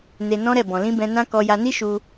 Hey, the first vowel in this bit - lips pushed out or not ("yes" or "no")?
no